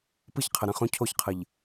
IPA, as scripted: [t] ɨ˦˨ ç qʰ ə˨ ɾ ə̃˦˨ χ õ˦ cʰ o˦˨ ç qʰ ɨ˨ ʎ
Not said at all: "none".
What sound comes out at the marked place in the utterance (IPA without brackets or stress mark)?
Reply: p